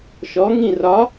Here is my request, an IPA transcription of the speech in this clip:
ʃ ɔ ŋ ĩ r ɒ

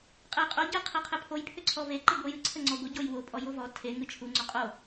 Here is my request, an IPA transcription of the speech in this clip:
qʼ ɛ j qʼ o ɟ ɘ qʰ e qʰ ɘ pʰ o j pʰ ʏ ǀʰ ɔ v e ǃ ɨ ɡʷ ɘ j ɨ ǀʰ ə ŋ͡ǀ ɔ ɡʷ ə ɟ o j w o pʼ ɔ j o v ɔ tʰ e ŋ ɨ t͡ʃʰ u ŋ͡ǀ o qʼ o

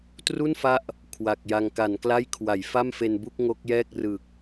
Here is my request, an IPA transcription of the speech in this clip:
t r u˥˩ n f a˦˥ ʔ | kʰ w a˨˩ k̚ j a˧ ŋ k a˩˦ n k l a˥˩ j kʰ w a˩˦ j f a˥˩ m f e˧ n b u˥˩ k̚ ŋ o˦˥ k̚ j ɛː˥˩ k̚ r ɯ˨˩ k̚

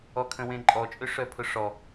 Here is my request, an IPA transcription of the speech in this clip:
ɔ kʰ ə̃ w ẽ ǃʼ ɔ t͡ʃʼ ø ʂ œ pʰ ʊ ʂ ɔ

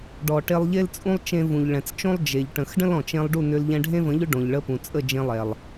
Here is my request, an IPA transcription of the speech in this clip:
ɖ ɔ˨ ʈ e˧ lˠ ʎ e˦ l t͡sʼ ũ˦ lˠ t͡ʃ ẽ˧ v ũ˨ ʎ ɭ ɛ̃˨ t͡s t͡ʃ õ˦ lˠ d͡ʒ e˨ ʎ ʈ ə̃˨ x ɖ ə̃˦ l ɔ̃˨ t͡ʃ ẽ˧ lˠ ɖ u˦˨ n ʏ˧ l ʎ ɛ̃˧ ɖʱ ẽ˦ v ə̃˨˦ ʎ ʏ˦ ɖ õ˨ ʎ ɭ ə˧ p ũ˨ t͡sʼ ə˦˨ d͡ʒ ẽ˧ lˠ ɛ˨ lˠ

